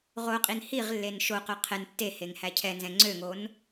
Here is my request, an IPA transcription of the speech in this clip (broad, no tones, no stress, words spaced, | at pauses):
ʁoqʼin hiʁlːen ʃoqœ qʰɛn tːe heŋhæcʰɛnzɛ̃ ŋ͡ǀøŋon